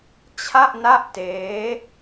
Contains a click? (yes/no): no